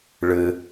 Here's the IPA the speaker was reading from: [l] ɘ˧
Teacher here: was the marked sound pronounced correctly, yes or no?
no